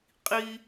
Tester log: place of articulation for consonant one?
uvular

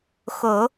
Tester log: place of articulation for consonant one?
velar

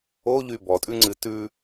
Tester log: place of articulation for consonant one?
palatal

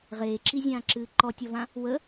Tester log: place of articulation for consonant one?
uvular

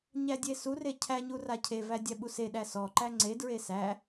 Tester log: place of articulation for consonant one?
palatal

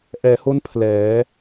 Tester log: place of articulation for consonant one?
glottal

